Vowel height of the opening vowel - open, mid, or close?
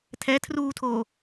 mid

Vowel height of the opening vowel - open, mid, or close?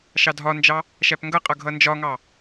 open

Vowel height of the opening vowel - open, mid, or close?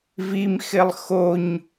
close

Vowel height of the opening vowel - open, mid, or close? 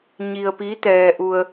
close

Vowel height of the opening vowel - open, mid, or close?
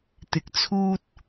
close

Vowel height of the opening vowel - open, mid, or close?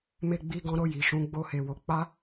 mid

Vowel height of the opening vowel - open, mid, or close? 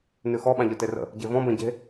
close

